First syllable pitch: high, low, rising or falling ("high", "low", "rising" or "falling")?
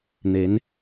rising